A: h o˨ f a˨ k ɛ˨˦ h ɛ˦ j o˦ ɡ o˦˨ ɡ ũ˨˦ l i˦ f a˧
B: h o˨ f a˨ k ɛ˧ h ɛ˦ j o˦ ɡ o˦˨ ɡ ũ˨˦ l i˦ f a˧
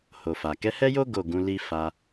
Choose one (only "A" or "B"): A